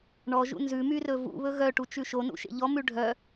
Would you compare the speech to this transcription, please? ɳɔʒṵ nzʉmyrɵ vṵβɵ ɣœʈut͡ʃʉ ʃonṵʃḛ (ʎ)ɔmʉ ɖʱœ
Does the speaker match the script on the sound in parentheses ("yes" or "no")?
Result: yes